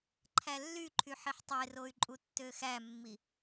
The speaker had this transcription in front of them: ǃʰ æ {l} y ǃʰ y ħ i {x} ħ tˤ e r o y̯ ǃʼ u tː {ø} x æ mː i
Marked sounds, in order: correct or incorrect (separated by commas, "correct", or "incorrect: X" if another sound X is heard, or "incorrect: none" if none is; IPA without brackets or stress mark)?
incorrect: lː, incorrect: none, correct